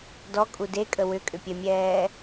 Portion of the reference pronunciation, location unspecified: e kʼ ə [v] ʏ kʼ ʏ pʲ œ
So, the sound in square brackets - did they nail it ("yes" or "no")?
no